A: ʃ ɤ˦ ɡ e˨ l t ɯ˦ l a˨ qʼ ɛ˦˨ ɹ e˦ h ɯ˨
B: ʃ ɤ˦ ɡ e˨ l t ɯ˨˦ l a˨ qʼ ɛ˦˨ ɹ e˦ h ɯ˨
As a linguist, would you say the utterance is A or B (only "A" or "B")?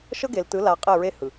B